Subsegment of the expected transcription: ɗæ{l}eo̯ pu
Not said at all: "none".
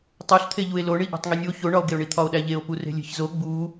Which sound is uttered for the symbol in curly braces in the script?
ʎ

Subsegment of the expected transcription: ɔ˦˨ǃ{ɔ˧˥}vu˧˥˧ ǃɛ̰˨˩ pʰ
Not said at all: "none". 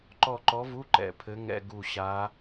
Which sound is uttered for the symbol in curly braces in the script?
ɔ˧˥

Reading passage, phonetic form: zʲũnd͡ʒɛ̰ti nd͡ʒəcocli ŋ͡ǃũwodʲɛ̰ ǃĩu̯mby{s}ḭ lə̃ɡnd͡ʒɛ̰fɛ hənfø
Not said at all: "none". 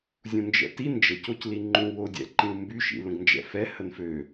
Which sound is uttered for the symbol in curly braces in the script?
ʃ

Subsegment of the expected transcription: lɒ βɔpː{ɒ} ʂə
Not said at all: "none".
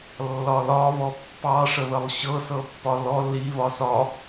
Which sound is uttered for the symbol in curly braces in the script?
ɑ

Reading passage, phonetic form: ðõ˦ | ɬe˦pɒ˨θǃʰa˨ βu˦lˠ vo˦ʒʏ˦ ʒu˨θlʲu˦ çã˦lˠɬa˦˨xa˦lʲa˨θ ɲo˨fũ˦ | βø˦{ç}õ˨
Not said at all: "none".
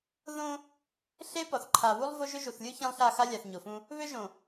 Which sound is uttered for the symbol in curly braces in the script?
ʒ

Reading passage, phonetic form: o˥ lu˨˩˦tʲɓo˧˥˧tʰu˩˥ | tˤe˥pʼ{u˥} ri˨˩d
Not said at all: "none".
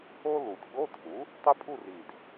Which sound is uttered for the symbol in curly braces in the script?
u˥˧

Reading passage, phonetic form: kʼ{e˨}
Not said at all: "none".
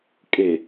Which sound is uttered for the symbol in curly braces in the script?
e˨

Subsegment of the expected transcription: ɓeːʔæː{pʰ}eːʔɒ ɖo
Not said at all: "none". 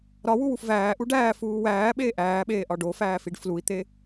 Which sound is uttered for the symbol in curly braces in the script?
ɓ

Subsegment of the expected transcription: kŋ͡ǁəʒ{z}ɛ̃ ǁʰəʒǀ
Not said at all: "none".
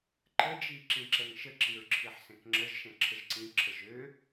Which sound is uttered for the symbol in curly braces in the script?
ʃ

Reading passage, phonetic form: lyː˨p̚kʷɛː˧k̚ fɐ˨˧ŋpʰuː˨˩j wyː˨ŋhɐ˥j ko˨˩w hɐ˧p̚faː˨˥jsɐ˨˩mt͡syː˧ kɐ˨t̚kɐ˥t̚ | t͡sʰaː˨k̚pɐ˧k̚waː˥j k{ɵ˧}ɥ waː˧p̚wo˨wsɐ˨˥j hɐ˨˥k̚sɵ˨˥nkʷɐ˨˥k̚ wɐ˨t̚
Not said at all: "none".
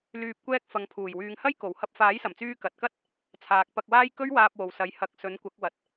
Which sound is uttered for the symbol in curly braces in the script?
ɵ˥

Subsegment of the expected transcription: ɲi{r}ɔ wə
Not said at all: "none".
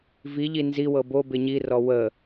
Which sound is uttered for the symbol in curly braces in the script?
r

